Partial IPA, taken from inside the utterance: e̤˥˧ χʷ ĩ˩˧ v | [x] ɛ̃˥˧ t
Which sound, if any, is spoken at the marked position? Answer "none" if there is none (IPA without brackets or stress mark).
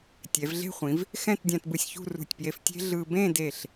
x